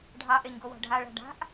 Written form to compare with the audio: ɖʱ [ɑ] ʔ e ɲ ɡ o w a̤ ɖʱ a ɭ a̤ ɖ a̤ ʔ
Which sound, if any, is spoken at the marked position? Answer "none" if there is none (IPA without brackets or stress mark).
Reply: ɑ